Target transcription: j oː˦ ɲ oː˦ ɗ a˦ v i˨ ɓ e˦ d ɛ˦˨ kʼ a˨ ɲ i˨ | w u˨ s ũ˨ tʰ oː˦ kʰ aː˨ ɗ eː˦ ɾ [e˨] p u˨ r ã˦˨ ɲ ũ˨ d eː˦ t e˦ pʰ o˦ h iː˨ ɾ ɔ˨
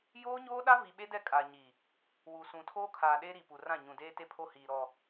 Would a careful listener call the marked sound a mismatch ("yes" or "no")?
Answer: yes